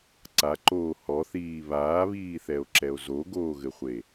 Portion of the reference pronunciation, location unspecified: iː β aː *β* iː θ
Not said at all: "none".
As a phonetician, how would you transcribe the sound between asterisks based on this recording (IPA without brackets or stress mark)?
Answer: β